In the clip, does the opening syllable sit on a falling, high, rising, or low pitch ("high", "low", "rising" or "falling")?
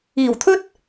low